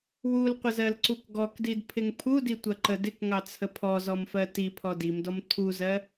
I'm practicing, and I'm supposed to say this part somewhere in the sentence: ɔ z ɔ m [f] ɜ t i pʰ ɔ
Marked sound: correct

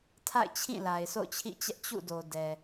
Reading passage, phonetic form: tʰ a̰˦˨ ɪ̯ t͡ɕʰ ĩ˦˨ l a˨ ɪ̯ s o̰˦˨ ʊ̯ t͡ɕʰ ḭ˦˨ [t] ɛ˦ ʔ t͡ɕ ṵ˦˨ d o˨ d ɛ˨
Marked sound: incorrect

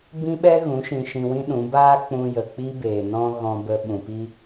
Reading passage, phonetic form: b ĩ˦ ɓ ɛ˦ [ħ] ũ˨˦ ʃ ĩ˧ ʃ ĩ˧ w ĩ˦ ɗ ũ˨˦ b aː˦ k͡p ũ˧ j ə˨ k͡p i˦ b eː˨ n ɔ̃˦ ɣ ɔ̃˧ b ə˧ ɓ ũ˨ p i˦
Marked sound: incorrect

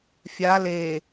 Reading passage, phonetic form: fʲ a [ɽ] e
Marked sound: incorrect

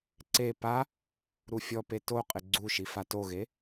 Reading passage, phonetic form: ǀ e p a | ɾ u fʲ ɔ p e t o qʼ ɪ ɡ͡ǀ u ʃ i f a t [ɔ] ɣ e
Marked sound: incorrect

